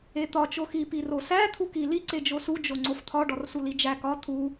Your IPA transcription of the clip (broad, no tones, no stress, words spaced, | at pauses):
et̪ɒ t͡ʃoxi pirosæ t̪ʰuki li ǀed͡ʒosu d͡ʒoŋ͡ǀoft̪ʰɒ ɖɒrsulid͡ʒæ kɒ t̪ʰu